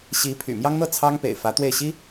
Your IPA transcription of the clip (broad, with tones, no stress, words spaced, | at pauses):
ɕi˧˥pʰy̰˨˩ mjɑ˥ŋn̪ɤ˥˩ t͡sʰɑ˥ŋpḛ˨˩ɪ̯ fä˧˥t̪we˥˩ɪ̯ɕi˥